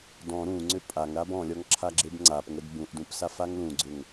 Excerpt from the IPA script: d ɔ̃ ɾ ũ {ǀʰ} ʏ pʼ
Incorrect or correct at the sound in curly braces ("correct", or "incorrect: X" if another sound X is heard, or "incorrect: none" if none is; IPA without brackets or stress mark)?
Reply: incorrect: ŋ͡ǀ